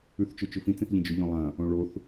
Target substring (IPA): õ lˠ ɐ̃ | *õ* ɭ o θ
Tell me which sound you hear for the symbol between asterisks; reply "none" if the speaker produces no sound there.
õ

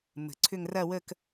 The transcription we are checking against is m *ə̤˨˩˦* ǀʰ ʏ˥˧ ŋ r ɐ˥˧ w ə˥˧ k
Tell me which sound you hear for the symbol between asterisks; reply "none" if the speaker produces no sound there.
ə̤˨˩˦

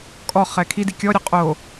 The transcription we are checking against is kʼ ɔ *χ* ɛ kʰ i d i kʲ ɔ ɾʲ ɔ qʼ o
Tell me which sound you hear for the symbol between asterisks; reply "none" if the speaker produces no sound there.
χ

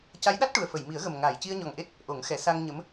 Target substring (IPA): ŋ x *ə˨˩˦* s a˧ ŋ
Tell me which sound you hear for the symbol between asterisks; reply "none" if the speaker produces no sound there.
ɛ˨˩˦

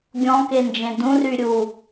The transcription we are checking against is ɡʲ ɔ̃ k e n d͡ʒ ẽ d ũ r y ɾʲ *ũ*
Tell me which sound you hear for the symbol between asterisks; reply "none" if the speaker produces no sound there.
u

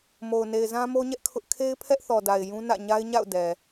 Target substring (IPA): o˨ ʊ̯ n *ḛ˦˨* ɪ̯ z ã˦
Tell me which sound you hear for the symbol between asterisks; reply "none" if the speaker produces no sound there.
e˨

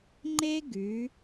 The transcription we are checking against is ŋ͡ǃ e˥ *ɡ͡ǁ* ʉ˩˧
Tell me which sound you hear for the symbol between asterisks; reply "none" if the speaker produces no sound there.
ɡ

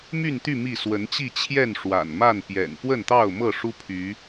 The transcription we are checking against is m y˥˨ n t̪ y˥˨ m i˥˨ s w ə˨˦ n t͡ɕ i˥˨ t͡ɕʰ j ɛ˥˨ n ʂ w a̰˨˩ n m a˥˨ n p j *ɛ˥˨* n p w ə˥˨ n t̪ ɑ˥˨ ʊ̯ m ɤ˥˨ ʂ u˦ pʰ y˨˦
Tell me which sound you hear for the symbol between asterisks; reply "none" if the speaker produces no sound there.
ɛ̰˨˩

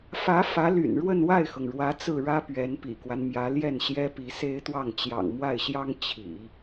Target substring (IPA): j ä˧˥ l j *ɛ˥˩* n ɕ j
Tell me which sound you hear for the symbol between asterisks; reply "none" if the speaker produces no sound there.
ɛ˥˩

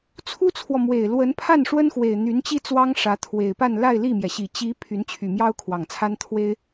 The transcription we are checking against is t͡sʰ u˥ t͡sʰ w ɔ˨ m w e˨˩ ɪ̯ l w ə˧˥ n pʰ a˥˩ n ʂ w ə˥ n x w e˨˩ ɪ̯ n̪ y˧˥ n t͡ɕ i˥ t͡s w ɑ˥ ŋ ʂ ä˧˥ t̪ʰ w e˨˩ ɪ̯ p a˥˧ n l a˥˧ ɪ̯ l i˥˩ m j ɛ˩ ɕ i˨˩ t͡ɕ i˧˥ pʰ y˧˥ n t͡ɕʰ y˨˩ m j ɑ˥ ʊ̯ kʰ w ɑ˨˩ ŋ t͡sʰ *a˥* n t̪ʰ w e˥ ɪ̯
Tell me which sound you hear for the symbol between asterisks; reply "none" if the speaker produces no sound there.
a˥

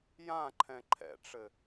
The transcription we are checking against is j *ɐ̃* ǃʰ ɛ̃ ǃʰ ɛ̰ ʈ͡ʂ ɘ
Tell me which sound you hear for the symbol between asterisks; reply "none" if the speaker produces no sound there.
ã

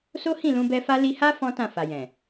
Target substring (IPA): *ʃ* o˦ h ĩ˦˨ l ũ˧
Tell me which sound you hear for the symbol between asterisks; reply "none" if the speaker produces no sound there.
s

